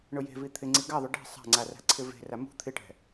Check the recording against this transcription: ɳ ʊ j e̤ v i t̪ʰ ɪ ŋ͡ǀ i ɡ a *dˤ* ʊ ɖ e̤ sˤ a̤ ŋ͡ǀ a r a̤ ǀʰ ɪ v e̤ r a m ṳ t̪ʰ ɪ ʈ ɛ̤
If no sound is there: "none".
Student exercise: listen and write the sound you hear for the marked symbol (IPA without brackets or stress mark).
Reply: ðˤ